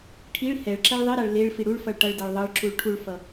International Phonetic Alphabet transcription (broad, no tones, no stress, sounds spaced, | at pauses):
ʈʰ i ɭ h ɛ ɭ ǁ ɛ ɭ ðˤ i ɾ a ɭ l e ɭ f i ɽ u ɭ f ʌ ɭ ʈ ʌ ɭ d ɛ ɭ ðˤ ʌ ɭ ǁ u ɭ ʈʰ u ɭ f ʌ